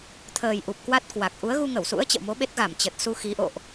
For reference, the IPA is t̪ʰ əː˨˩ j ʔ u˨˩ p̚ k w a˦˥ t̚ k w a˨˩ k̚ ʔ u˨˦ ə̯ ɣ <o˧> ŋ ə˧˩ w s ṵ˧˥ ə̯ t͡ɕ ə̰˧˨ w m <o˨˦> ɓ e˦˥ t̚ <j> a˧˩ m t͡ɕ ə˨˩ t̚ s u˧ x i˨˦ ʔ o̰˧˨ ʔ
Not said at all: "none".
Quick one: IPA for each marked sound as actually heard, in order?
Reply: u˧, o˨˦, ɣ

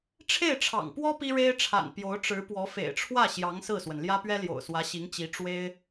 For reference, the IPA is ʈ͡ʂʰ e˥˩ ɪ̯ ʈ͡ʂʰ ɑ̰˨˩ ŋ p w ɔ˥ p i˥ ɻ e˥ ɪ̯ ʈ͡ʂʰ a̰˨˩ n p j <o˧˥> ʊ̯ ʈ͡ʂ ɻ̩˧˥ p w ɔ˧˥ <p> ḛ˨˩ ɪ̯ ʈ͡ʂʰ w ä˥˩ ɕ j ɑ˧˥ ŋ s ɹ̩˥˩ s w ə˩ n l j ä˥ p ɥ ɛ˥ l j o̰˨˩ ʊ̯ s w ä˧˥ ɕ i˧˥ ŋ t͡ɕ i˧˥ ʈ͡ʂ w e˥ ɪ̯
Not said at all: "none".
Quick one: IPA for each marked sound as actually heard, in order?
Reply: o˧˥, f

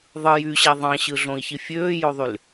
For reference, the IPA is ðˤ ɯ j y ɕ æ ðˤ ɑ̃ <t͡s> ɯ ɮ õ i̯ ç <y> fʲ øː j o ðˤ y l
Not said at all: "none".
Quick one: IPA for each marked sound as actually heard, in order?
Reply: ɕ, i

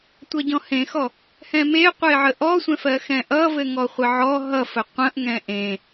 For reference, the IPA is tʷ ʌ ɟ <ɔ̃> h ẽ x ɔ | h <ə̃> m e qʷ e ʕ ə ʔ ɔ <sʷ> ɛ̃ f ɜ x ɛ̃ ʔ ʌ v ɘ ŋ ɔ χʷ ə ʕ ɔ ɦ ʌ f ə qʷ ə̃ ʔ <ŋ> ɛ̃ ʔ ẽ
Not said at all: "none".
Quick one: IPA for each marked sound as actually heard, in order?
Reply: ɔ̃, ɛ̃, sʷ, ŋ

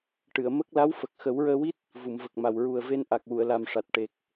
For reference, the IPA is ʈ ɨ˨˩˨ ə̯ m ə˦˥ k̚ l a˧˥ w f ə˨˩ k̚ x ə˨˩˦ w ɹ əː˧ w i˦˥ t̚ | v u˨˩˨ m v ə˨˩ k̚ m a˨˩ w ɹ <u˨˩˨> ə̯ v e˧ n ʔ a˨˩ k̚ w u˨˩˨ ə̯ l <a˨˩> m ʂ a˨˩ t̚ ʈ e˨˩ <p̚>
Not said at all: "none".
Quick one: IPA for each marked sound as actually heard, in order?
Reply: u˨˩, a˨˩, k̚

